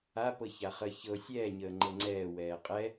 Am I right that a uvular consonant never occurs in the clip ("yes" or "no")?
no